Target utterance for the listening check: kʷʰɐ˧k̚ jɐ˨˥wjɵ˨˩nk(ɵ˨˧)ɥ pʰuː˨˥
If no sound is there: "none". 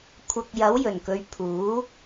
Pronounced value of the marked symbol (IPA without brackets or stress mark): ɵ˨˧